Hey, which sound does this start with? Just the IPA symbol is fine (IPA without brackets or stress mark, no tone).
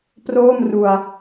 p